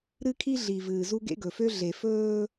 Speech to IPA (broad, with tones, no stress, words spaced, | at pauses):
ɾɨ˦kʰi˦ɮi˨vɨː˨ zu˦ɡḛ˦ɡɵ˨ fø˦ɮe˨ fɵː˦